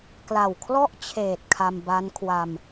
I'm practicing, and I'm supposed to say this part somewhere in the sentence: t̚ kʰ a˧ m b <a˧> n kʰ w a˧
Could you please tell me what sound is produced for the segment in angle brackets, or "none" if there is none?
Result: a˦˥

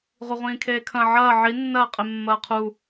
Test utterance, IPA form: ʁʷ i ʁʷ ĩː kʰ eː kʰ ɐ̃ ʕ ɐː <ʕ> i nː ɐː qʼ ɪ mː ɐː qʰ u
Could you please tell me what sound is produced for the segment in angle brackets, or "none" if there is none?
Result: ʕ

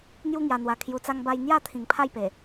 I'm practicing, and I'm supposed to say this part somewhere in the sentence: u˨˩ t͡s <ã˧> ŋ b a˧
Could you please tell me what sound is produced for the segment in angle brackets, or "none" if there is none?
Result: a˧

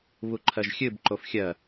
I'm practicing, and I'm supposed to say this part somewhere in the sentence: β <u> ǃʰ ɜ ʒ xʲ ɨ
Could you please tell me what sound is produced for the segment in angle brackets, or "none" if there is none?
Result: u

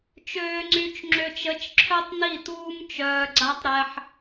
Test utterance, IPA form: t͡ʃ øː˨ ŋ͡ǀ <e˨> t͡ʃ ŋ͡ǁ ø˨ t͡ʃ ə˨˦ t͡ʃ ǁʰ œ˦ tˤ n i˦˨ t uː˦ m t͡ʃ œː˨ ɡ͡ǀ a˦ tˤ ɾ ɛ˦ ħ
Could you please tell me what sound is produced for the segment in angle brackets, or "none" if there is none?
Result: y˨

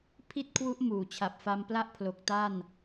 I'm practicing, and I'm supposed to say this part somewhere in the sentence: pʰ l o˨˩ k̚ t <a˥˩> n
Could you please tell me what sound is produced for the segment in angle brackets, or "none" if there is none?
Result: a˥˩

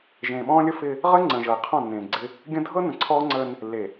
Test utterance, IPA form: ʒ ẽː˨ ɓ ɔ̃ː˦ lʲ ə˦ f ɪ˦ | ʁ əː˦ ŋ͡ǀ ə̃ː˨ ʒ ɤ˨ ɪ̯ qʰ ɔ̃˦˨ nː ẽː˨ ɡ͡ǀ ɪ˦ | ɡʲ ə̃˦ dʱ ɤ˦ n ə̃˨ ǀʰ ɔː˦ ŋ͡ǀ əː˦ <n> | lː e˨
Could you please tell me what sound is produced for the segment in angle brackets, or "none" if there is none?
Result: n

